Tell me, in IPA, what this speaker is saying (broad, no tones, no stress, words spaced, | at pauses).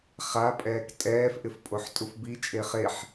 χapʼɛːk tʼɛːfʔɪf pʼoħtʼufbi t͡ʃʼeχeħ